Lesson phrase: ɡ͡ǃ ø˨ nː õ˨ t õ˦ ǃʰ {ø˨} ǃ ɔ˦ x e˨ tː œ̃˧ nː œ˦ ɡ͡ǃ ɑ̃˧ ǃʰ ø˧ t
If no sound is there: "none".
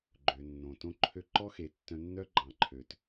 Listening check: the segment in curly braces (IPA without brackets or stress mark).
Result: ø˦